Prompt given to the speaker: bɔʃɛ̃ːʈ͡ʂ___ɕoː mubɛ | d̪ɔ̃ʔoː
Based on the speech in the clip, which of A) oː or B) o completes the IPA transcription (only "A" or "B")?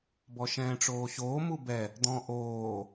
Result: A